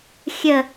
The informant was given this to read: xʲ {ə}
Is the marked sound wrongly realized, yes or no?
no